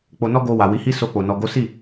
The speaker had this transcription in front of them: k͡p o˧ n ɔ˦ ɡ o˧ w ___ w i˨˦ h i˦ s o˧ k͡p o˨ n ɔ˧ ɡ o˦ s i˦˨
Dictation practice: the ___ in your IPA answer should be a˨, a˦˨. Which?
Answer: a˨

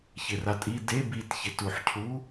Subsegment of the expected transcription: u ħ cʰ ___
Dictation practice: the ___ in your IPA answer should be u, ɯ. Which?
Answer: u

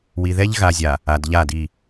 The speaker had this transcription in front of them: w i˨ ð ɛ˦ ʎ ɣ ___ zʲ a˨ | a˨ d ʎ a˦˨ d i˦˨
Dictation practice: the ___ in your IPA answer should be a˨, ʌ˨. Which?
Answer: a˨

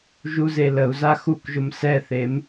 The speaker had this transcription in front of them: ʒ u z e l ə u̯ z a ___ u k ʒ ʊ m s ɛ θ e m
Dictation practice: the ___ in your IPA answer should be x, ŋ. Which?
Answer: x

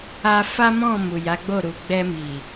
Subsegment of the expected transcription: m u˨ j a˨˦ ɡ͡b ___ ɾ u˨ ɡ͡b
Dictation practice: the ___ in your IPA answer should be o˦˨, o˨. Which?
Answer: o˦˨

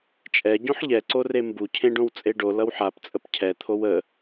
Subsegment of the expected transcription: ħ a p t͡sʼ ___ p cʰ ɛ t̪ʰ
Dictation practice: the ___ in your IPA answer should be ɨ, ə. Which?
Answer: ə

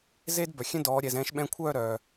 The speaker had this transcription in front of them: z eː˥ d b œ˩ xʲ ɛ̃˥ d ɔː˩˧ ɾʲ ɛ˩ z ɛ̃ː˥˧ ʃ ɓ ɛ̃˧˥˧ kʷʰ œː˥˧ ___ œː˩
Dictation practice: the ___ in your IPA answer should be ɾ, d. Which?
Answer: ɾ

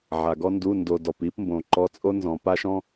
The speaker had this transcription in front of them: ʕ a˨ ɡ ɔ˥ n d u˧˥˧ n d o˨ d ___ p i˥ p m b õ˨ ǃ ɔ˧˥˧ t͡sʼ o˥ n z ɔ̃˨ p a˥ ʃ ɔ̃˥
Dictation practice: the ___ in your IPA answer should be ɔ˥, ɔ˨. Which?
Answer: ɔ˨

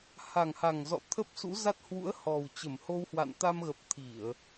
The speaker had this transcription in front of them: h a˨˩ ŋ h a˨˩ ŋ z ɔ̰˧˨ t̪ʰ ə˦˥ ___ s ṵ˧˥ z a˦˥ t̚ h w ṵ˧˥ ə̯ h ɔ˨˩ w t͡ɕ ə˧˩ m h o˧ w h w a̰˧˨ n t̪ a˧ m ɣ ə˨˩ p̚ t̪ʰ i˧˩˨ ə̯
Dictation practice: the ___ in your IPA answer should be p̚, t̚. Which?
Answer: p̚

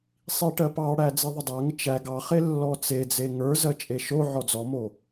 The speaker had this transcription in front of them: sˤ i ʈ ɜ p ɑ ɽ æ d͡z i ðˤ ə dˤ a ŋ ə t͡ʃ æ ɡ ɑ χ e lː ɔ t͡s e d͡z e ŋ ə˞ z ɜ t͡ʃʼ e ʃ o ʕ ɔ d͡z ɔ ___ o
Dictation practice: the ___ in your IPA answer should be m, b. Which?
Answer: m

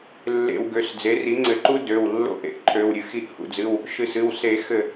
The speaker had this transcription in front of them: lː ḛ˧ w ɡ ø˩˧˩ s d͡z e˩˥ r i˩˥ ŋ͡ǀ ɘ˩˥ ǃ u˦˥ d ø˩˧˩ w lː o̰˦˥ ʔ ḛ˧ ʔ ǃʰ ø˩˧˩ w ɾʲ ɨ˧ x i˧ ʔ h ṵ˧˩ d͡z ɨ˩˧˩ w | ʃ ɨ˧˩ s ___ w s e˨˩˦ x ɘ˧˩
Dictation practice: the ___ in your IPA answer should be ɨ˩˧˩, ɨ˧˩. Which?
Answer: ɨ˩˧˩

